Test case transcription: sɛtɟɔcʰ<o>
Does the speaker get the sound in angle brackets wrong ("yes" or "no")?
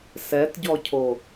no